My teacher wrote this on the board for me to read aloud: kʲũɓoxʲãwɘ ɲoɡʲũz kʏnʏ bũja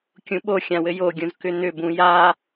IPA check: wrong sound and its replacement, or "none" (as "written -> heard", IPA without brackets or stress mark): ɲ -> j